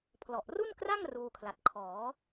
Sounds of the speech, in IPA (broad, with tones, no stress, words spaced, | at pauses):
pʰlɔ˨˩ʔru˥˩nkra˥˩ŋ ruː˧kʰla˨˩t̚ kʰɔː˩˦